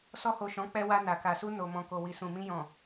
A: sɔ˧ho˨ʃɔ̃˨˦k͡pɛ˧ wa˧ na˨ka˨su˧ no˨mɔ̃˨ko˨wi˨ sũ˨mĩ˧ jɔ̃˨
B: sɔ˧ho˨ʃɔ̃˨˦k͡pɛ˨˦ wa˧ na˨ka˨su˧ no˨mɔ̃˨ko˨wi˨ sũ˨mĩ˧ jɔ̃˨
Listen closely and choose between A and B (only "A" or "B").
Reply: A